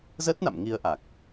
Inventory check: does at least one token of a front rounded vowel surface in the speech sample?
no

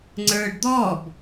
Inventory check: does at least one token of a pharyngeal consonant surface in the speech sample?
no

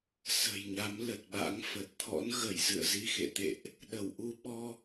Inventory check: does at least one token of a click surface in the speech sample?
no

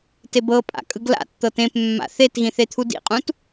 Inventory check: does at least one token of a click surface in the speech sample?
no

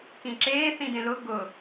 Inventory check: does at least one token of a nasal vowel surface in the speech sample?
yes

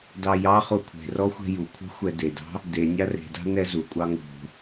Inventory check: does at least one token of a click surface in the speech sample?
no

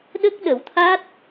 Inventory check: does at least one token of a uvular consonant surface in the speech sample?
no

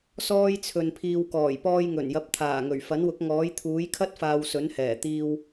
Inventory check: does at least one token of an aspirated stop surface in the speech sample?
yes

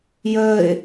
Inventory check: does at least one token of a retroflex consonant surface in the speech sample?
no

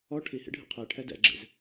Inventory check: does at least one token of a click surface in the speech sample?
yes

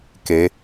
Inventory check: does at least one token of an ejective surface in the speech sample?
no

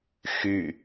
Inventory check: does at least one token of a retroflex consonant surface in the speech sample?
no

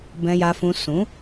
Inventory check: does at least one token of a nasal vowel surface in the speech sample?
yes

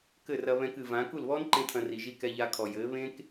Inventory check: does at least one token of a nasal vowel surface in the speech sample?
yes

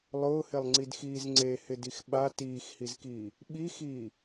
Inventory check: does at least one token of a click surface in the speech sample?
yes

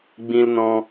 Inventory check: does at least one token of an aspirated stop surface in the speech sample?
no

